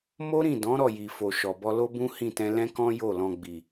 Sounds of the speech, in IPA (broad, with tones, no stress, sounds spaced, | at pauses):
m o˦ ɾ ĩ˦˨ d ɔ̃˨˦ ɾ ɔ˦˨ j i˨ f o˨ ʃ ɔ˨ b ɔ˧ l o˦ b ũ˦ h ĩ˦˨ t ɛ̃˧ l ɛ̃˦ k ɔ̃˦ j o˦˨ l ɔ̃˨ ɡ͡b i˨